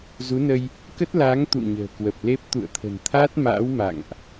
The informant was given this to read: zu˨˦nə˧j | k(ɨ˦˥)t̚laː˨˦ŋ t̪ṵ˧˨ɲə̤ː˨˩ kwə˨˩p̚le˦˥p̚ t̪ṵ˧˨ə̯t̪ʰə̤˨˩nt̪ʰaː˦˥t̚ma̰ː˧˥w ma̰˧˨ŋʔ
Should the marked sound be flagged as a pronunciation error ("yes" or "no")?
yes